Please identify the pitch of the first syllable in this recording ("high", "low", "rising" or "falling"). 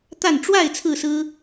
falling